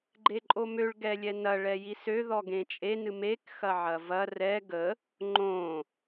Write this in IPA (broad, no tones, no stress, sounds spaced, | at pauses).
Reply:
ɡ͡ǃ e ǃʼ o m ø ɭ ɡ ɛ lʲ ɛ n ɐ ɭ ɛ j i s ø ð ɔ ɡ ẽ t͡ʃʼ e n ɨ m e k x ɐ ʕ ɐ v ɐ r ɛ ɡ ə | ŋ͡ǃ õ